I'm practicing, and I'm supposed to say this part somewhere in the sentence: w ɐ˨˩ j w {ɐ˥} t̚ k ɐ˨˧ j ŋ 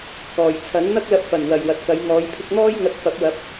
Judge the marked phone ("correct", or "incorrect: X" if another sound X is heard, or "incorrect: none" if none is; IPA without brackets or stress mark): incorrect: ɐ˨